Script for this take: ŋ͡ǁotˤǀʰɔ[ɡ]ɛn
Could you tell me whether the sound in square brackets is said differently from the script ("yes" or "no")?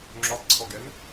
no